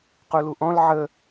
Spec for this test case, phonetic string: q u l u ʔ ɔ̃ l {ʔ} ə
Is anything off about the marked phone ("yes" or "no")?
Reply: yes